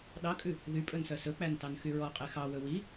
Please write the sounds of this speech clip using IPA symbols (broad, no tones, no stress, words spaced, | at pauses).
ɗɑkʼʉ | ðypʼɵnsœ sɵk͡pæntɑnxy ɹɔqʼɛ xɑwɵ wi